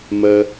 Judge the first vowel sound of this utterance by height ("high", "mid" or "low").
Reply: mid